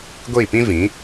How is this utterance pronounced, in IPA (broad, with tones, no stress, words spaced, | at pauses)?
ɡʷiː˦˨pĩ˦ vĩ˨˦